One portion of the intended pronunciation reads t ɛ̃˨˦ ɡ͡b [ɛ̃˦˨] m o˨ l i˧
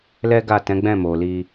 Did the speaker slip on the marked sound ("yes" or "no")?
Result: no